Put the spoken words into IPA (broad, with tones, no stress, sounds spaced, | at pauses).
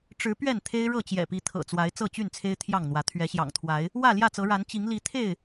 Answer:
ʈ͡ʂ ɻ̩˨˦ p ɥ ɛ˥˨ n t̪ʰ e˦ ɪ̯ ɻ ɤ˥˨ t͡ɕ j ɛ̰˨˩ p i˨˦ t̪ʰ ɤ̰˨˩ t͡s w a˨˦ ɪ̯ t͡s ɤ˥˨ t͡ɕ y˥˨ n t͡sʰ e˦ ɪ̯ t̪ʰ j ɑ˥˨ ŋ n̪ w ä˨˦ t̪ʰ ɥ ɛ˨˦ ɕ j ɑ̰˨˩ ŋ t̪ʰ w a˨˦ ɪ̯ | w ä˥˨ l j ä˥˨ t͡s ɤ˨˦ ɻ a˨˦ n t͡ɕ i˨˦ ŋ l i˨˦ t̪ʰ e˥˨ ɪ̯